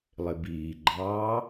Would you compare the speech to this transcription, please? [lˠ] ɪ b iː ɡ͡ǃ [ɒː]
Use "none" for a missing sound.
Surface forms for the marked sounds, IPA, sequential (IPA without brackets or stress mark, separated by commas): lˠ, ɑː